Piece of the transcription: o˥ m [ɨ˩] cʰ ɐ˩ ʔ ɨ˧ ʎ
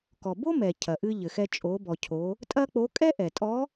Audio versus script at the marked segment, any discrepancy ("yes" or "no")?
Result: yes